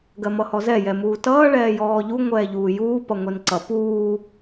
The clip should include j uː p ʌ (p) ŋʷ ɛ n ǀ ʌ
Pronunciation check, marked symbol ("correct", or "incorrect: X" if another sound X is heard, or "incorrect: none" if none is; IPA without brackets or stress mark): incorrect: none